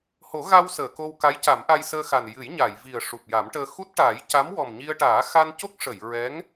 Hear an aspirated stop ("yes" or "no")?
no